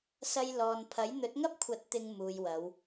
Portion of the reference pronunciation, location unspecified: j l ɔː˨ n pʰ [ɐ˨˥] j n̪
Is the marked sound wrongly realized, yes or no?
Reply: no